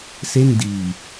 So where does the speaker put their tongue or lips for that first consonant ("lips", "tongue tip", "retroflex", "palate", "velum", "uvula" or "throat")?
tongue tip